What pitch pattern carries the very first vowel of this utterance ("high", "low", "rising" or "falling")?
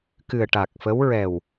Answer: low